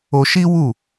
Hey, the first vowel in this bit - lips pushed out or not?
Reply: yes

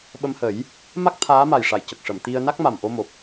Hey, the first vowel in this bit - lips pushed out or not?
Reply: no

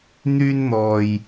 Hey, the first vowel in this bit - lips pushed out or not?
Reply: yes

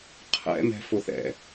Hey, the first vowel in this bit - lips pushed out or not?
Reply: no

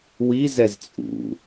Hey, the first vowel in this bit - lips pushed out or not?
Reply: no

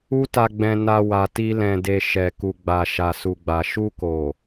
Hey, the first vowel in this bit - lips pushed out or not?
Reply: yes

